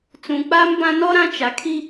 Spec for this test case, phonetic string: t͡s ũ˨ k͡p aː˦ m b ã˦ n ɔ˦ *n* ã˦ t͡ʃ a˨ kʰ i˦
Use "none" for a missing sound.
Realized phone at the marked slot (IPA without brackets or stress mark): ɾ